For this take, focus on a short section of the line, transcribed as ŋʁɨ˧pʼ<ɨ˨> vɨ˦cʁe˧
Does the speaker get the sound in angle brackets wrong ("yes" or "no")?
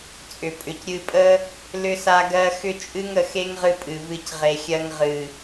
no